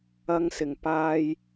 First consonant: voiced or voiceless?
voiced